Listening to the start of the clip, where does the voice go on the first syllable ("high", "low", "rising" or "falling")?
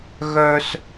high